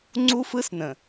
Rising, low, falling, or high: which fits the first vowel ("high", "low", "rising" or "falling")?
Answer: high